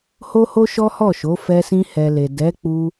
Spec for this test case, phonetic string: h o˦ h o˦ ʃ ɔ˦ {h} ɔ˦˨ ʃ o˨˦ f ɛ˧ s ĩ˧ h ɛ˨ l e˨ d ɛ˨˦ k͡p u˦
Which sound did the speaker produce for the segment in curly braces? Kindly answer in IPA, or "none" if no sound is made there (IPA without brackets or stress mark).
h